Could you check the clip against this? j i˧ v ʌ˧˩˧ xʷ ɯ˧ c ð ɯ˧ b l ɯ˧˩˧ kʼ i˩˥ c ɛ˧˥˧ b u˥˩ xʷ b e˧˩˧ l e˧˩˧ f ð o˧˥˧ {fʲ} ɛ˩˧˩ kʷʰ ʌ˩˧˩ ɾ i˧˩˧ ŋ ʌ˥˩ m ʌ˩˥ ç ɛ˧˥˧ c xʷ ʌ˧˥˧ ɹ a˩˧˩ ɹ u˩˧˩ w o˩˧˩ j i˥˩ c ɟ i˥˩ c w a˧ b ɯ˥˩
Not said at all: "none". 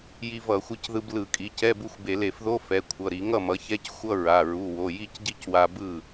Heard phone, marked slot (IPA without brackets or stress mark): f